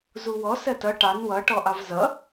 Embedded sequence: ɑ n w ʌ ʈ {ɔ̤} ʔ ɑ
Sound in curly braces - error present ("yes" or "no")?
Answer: yes